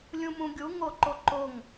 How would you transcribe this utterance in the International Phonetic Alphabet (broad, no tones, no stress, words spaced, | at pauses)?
lʲũmũɡʲu ŋoǃoǃoŋ